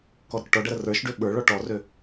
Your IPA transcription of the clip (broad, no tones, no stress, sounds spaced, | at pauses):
k ɔ ɾ ə k ʈ ɔ ɖ ʌ ɾ ə r ə˞ ʃ ɖ ø ɓ ə˞ ɭ ɔ ʈ ɔ r ø